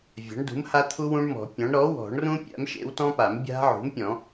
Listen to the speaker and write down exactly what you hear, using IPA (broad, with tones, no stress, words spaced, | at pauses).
vʲa̤˩˥ɳdṳ˩˥mha˦˥t̪ʰu˦˥ wũ˦˥ɳmɔ̤˨˩˦pʲɔ̃˩˥ɳ ɾɔ˩˥ wɔ̤˨˩˦ɳrũ˦˥ pʲa̰˩˥m ʃḛ˩˥wtɔ̃˦˥pa˨˩˦m bʲa̤˦˥ʕṳ˩˥mpʲɔ̃˨˩˦